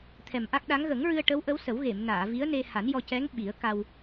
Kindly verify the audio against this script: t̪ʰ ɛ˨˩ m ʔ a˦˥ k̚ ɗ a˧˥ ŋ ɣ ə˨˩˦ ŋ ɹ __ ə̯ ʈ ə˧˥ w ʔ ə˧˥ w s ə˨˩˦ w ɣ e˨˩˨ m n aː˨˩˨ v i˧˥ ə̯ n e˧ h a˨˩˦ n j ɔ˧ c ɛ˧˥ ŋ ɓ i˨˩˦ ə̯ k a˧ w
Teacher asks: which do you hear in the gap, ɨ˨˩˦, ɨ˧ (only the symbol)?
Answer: ɨ˧